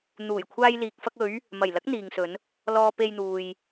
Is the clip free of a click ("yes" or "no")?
yes